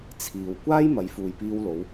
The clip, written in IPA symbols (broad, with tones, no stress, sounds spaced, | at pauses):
t͡sʰ iː˨ w kʷ aː˥ j m ɐ˨˧ j f uː˨ j p iː˧ w l o˨˧ w